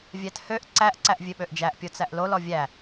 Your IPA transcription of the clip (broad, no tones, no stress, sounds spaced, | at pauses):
vʲ æ t h ø ʔ ǀ æ ʔ ǀ æ ʔ vʲ ø ɓ ø ʔ d͡ʒ æ ʔ pʲ o t͡s æ ʔ l o l ɔ vʲ æ